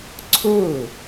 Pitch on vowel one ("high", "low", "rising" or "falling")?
falling